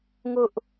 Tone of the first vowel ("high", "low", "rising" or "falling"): high